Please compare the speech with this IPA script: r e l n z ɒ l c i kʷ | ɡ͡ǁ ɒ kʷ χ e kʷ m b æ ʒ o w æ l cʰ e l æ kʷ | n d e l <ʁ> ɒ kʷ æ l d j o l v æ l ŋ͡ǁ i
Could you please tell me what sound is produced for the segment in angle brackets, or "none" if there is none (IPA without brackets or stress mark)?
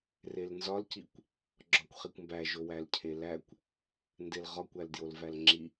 ʁ